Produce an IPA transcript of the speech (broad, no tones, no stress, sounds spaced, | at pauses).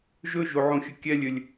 ʒ ɵ ʒ u ʕ ũ xʲ ə kʲ ɛ lʲ ʏ lʲ